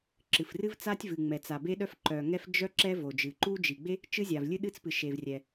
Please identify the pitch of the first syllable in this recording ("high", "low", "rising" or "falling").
low